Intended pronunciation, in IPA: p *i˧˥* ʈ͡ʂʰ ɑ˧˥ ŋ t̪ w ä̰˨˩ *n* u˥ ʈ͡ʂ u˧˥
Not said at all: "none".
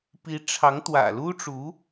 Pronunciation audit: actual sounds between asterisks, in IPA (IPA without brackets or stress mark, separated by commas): i˧˥, l